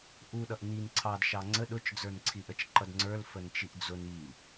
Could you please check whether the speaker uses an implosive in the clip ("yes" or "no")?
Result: yes